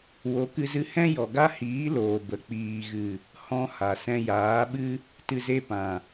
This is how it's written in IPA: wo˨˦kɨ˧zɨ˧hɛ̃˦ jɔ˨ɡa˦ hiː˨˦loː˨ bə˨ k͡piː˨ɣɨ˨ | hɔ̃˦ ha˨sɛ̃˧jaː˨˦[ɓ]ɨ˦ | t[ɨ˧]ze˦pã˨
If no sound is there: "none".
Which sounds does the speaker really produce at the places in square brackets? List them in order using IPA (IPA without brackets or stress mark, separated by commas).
ɓ, ɨ˧